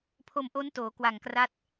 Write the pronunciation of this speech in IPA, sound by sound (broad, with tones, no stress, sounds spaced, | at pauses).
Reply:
pʰ o˧ m ʔ o˦˥ n t oː˩˦ k w a˨˩ ŋ k r a˦˥ t̚